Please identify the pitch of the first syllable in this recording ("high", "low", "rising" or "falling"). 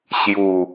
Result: low